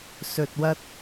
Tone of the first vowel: low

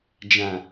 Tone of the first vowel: low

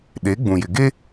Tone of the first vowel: rising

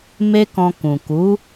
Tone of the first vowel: high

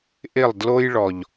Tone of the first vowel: falling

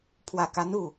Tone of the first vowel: low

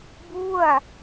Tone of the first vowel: falling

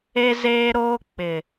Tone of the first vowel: high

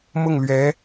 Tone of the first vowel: falling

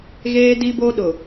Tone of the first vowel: high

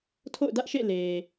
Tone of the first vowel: falling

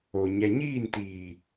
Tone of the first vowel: low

